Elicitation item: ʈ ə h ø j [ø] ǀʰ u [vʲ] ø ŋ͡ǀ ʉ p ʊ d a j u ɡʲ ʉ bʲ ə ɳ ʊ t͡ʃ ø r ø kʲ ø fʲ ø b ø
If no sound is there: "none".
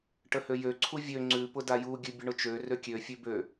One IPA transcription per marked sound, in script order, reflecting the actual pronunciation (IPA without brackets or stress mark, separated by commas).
ø, vʲ